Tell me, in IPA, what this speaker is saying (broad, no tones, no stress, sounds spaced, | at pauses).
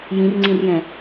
j ĩ r ŋ͡ǀ ĩ r j ɛ̃